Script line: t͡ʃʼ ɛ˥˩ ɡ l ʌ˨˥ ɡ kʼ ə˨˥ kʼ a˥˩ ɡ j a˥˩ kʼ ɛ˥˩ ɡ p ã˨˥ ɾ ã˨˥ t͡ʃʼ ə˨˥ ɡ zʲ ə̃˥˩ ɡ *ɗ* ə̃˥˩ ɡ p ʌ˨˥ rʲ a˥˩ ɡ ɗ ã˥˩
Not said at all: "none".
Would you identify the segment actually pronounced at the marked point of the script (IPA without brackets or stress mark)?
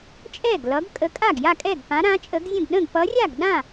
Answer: ɗ